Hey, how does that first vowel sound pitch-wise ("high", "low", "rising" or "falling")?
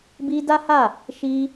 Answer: high